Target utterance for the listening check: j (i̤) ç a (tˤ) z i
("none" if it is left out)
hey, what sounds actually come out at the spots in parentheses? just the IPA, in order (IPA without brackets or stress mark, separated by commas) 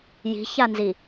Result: i̤, n